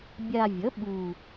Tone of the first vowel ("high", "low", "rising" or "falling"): low